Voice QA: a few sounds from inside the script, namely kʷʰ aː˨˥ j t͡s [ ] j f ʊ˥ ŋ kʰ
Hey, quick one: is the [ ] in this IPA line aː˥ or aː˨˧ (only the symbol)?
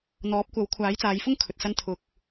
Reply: aː˨˧